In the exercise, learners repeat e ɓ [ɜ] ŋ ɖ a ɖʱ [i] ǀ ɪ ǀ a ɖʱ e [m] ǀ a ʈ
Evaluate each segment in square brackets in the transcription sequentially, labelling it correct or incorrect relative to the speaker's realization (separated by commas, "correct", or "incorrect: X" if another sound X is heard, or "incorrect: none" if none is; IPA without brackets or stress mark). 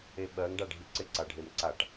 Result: correct, correct, correct